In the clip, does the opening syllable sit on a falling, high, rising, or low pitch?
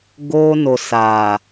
high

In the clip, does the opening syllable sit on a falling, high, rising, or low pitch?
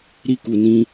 high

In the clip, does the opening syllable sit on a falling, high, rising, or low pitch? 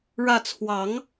falling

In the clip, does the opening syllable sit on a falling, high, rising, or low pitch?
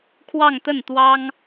falling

